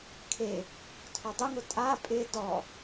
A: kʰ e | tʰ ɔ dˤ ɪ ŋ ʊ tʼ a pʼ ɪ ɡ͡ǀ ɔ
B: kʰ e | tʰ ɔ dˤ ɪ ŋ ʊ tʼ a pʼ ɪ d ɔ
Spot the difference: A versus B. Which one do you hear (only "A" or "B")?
B